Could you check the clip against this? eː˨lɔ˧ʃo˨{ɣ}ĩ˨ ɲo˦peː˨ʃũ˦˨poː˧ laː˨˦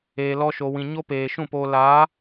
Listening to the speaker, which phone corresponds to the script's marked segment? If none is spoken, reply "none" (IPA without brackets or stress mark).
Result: w